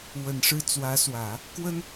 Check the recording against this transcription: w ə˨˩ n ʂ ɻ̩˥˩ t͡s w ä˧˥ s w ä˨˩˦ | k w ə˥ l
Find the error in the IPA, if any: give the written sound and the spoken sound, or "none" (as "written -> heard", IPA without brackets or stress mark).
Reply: l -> n